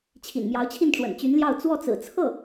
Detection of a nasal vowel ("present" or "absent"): absent